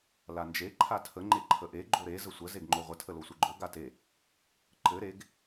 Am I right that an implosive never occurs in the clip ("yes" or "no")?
yes